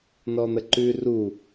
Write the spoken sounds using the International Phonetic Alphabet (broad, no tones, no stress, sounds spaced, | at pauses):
n ɔ n̪ ə ǃ ʉ r u